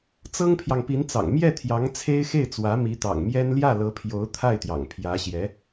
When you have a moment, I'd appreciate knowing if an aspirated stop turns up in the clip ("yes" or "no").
yes